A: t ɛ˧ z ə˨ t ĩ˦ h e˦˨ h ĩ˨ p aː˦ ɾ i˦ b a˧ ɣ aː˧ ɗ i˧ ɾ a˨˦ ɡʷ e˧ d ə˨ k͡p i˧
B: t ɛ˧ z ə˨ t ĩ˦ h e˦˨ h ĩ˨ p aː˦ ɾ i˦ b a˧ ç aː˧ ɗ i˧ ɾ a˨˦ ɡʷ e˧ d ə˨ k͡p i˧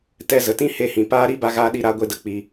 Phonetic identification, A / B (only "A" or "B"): A